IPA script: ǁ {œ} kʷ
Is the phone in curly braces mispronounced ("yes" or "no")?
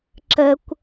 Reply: yes